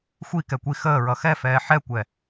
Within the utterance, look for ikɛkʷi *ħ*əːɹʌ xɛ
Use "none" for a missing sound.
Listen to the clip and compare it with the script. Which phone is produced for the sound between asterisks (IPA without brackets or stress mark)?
x